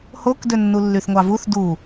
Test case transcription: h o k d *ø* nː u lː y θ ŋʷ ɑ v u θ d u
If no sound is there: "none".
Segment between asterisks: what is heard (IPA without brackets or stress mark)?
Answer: ø